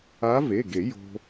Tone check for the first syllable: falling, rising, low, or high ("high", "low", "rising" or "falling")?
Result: rising